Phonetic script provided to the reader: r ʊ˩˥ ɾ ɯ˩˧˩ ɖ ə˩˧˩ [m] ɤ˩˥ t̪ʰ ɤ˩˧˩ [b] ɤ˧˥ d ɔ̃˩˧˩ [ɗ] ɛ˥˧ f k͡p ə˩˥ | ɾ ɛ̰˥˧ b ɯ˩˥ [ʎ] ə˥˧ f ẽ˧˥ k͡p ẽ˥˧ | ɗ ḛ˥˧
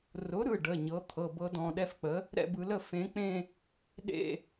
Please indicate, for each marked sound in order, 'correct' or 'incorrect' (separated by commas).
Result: incorrect, correct, correct, incorrect